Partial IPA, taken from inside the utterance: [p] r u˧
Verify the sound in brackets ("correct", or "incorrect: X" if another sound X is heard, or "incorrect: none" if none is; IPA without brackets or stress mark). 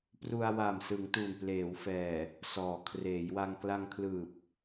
correct